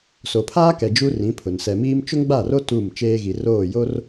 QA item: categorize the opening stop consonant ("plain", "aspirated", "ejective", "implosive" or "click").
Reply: aspirated